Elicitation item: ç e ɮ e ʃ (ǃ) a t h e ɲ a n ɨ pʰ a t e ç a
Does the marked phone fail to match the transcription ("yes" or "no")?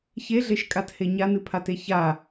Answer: yes